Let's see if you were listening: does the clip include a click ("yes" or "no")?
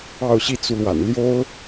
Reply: no